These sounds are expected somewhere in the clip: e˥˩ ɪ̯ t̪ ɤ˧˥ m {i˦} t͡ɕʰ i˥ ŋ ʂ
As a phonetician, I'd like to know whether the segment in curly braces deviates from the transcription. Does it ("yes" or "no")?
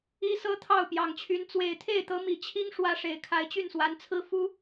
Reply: yes